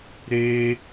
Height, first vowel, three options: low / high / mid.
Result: mid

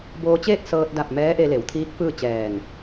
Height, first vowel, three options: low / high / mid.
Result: mid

